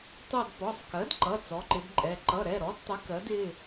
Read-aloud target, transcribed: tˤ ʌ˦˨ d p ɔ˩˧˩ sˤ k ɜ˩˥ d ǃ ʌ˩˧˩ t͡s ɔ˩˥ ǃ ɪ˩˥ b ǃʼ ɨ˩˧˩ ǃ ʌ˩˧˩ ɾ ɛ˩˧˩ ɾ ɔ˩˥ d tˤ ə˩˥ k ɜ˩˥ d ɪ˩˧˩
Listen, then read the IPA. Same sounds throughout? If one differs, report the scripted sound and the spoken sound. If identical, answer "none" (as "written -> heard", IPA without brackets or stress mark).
ɨ˩˧˩ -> ɛ˩˧˩